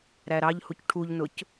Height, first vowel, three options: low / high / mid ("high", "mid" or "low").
low